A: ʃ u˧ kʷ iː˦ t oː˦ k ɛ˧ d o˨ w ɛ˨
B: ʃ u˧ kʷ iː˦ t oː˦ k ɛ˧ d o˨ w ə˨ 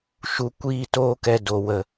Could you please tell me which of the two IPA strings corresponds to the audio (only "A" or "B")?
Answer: B